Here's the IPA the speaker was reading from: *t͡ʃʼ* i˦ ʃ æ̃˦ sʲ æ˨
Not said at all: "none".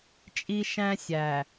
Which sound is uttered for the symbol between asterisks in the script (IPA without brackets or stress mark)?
t͡ʃʼ